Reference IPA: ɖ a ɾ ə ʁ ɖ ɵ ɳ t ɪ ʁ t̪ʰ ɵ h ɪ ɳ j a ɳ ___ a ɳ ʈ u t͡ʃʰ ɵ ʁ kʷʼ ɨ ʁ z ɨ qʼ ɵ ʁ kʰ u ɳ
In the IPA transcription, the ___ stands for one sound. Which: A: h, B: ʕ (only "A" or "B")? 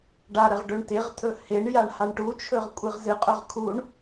A